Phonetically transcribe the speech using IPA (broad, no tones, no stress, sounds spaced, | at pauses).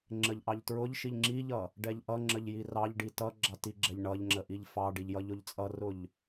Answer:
ŋ͡ǁ ə ʎ ʔ ɑ ʎ t ɹ ʊ ʎ ʃ i ʎ ŋ͡ǁ i ʎ ʌ | ɖ ɛ ʎ ʔ ʌ ŋ͡ǁ ə ʎ j i r ɑ ʎ ɖ i t ʌ ɡ͡ǁ ɑ t i ɡ͡ǁ ɛ ʎ ɳ ʌ ʎ ŋ͡ǁ ə ʔ i ʎ f ɑ ɖ i ʎ j ʌ ʎ ʊ ʎ t͡sʼ ʌ r ʊ ʎ